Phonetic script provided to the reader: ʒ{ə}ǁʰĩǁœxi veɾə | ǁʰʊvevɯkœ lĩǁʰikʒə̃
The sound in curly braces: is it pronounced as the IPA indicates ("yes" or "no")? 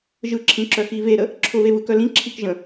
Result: no